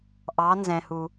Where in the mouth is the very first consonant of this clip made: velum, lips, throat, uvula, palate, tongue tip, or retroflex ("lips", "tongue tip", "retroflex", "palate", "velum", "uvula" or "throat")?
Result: throat